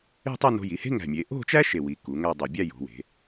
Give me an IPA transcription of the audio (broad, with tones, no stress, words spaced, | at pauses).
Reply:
e̤˥˧tˤe˥˧ no̤˧ji˩˧he̤˥ ŋæ̤˧˩mʲe˩˧ ʔo̤˥˧t͡ʃæ˥ ʃe˧˩wi˩˧ ku˩˧ŋæ˥˧dˤo˧˩ bʲæ˥˧ jo̤˩˧we̤˩˧